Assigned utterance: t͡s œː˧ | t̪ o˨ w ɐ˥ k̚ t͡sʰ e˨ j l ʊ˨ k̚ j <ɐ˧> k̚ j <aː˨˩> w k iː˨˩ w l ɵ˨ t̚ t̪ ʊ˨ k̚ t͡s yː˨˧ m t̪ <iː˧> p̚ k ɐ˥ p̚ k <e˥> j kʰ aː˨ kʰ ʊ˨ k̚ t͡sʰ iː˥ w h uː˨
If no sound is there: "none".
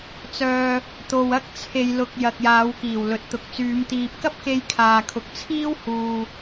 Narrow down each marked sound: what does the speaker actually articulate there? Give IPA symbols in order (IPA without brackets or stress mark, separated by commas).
ɐ˨, aː˨˧, iː˨, e˧